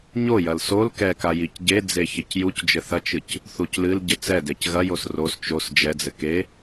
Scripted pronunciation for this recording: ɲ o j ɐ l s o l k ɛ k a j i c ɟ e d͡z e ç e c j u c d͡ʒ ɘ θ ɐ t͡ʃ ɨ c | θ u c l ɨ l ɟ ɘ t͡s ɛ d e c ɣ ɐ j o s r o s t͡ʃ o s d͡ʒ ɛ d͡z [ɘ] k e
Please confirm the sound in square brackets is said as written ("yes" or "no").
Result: yes